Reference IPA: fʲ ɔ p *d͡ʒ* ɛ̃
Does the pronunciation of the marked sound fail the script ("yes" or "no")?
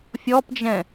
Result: no